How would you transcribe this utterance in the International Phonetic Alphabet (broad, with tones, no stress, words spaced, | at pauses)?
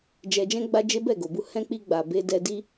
d͡ʒɛ˧d͡ʒɛ̃˦ɡ͡ba˦d͡ʒe˦ bɛ˦˨ɡo˨bu˧ hɛ̃˧ k͡pi˧ɡ͡ba˨ be˧ dɛ˧di˦